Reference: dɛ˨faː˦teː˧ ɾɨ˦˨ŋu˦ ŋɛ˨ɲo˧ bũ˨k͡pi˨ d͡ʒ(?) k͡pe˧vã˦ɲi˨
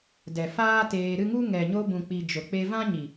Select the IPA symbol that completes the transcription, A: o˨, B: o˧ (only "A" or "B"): A